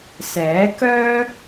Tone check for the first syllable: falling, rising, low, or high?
rising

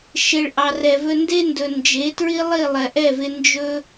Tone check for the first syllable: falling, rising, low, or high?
low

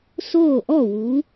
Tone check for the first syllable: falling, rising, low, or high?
falling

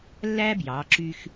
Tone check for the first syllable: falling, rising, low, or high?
high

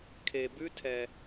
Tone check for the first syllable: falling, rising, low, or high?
low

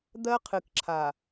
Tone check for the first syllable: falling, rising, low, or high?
high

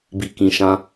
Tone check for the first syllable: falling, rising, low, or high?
low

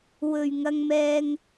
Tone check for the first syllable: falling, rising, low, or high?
low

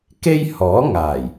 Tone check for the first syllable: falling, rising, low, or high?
high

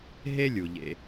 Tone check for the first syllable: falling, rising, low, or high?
high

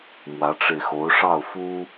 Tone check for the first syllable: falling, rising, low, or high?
rising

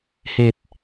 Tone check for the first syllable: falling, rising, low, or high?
low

